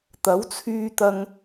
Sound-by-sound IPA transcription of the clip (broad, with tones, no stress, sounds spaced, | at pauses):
t̪ ɐ˨˥ w t͡sʰ yː˧ t̪ ɐ˧ ŋ